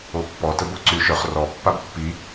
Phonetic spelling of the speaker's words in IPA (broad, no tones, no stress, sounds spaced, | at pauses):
o pː ɔ t ə b o ǀ y ʃ œ χ r ɔ pː a b pː i